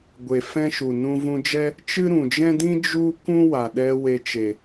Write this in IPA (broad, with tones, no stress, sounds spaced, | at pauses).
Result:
ɡʷ e˨ f ɛ̃˦ ʃ u˨ n ũ˧ v ũ˧ d͡ʒ ɛ˦ | t͡ʃ ɨ˦ ɾ ũ˨ d͡ʒ ɛ̃˦ d ĩ˦ d͡ʒ u˦ k ũ˦ w a˨ ɗ ɛ˧ w e˧ t͡ʃ e˨